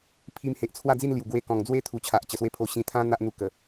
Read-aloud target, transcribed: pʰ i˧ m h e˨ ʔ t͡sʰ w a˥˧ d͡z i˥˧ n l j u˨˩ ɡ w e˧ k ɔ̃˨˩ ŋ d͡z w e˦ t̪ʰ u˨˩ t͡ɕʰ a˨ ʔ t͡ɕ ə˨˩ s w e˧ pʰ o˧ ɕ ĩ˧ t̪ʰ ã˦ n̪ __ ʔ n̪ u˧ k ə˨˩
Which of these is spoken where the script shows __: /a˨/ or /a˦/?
a˦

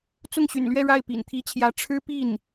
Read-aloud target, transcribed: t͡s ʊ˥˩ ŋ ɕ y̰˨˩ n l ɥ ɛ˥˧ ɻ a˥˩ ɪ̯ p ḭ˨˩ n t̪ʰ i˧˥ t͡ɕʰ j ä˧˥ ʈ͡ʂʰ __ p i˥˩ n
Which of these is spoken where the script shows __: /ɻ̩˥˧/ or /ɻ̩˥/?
ɻ̩˥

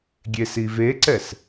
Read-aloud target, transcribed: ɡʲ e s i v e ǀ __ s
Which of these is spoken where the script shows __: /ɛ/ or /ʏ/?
ɛ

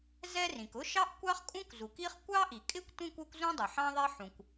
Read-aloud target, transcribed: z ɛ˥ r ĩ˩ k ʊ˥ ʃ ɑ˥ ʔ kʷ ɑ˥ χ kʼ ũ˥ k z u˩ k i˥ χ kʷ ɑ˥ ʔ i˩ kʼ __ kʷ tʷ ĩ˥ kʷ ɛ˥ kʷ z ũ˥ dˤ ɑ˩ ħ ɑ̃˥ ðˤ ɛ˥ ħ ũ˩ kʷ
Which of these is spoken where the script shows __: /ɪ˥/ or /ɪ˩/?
ɪ˥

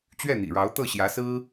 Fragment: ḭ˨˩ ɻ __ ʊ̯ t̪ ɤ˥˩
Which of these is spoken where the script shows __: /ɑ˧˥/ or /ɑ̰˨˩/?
ɑ˧˥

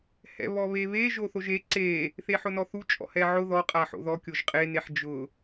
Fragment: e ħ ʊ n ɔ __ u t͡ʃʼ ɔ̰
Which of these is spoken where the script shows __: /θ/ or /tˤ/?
θ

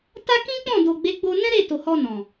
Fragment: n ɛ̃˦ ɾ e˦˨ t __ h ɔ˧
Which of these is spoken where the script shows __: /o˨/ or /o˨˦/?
o˨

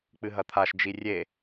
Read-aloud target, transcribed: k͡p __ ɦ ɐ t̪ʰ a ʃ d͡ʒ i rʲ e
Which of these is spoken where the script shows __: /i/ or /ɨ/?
ɨ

